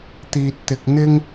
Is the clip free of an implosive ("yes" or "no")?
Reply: yes